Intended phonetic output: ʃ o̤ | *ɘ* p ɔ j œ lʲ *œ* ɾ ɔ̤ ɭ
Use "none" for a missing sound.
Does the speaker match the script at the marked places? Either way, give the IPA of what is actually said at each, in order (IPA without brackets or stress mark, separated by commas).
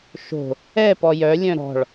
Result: ɛ, œ̃